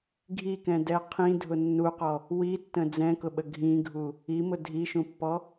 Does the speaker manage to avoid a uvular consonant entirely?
no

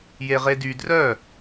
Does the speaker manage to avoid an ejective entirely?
yes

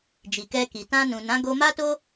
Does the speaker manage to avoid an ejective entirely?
yes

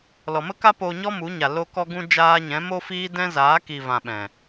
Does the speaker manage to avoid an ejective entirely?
yes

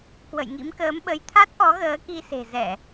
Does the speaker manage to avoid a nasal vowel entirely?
yes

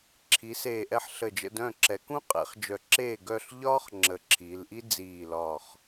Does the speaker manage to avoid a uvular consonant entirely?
no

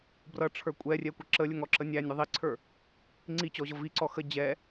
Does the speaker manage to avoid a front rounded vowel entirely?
yes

